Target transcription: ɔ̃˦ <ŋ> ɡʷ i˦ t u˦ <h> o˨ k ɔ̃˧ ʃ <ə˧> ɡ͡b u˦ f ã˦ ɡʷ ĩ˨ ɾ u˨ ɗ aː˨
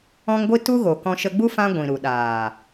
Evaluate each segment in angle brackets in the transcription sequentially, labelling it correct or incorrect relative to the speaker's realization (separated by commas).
correct, incorrect, correct